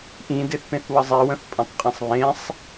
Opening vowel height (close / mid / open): close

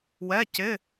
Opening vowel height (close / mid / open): mid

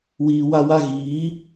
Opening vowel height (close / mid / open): close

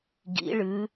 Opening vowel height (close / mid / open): close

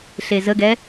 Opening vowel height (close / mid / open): mid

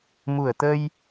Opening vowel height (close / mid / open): close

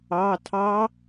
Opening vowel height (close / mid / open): open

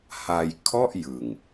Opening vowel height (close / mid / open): open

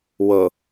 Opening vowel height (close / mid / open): mid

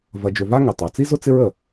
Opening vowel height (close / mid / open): open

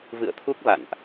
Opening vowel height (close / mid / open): close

